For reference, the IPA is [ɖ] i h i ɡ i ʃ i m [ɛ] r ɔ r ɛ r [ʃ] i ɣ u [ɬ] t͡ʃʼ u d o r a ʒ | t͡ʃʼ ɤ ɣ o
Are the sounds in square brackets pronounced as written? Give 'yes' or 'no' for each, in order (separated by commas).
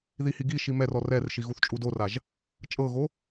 no, yes, yes, no